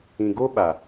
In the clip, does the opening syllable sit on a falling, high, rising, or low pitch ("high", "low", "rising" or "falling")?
low